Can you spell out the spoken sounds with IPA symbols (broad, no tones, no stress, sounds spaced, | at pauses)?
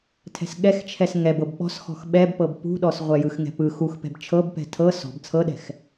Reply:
tʰ ɛ̤ s ɠ ɛ x t͡ʃʰ ɛ s ŋ ɛ b ɤ b ɓ ɔ̤ s x ɔ̤ x ɓ ɛ b p ɤ b p ṳ ɗ ɔ s ʁʷ ɛ j ɯ x ŋ ɛ̤ p ɯ x u x p ɛ̤ b t͡ʃʰ ɤ b p ɛ̤ tʰ ɤ s ɔ̤ b t͡sʰ ɤ ɗ ɛ̤ x